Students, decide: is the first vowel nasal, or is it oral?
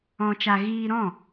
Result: nasal